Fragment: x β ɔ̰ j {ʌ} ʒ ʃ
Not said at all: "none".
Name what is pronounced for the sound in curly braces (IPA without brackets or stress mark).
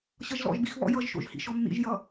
ʌ